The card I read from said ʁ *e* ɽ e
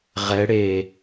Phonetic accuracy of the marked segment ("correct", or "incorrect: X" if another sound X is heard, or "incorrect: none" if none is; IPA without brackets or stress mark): incorrect: ɛ